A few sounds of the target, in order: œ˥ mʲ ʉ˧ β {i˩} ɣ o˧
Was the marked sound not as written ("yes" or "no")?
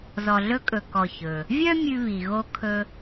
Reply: no